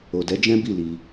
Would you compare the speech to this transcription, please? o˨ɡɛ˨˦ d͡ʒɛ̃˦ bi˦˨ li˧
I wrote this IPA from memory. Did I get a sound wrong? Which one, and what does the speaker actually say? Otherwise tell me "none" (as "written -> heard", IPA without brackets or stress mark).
ɡ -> d